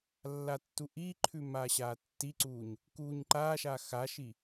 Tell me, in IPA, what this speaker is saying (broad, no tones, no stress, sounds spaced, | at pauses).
lː a tː u ʔ iː ǃʰ ʉ m aː ɕ aː tː i ǀ uː ɲ | k uː ɲ ǃ aː ʃ a x a ʃ i